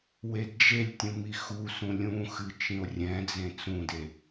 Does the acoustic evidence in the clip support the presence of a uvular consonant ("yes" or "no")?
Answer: no